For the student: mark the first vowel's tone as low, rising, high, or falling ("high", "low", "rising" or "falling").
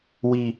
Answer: high